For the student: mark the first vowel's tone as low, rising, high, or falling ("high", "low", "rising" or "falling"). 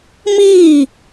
falling